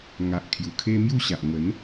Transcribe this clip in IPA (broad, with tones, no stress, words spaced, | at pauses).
ŋa˨ʔkʰju˨˩kʰe˦ mju˥˧ɕa˨ʔ ŋə˨˦n